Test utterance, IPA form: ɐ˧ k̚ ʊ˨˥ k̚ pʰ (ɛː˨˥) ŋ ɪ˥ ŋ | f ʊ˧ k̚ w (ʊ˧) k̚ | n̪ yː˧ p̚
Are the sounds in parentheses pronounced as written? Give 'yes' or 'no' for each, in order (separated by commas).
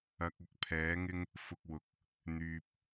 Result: yes, no